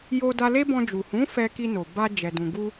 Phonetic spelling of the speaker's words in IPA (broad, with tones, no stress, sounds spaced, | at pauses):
j o˧ d a˧ l e˦ b ɔ̃˧ d͡ʒ u˨ h ũ˨˦ f ɛ˧ k i˧ n o˨ b a˧ d͡ʒ ɛ˨ d ũ˨ ɡ u˧